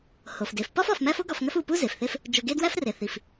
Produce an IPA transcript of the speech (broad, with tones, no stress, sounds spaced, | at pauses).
h o˩ f d e˩ f p ɒ˥ f ɒ˨ f m æ˦ f o˥ ɡ ɒ˨ f ŋ æ˦ f u˨ p u˥ z e˩ f θ e˦ f | d͡ʒ o˨ ɡ e˦ d w æ˥ f r e˩ θ i˩ f